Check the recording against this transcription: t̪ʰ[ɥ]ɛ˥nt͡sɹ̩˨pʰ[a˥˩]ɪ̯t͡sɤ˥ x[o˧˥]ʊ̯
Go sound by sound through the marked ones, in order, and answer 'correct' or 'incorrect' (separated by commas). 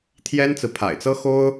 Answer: incorrect, incorrect, incorrect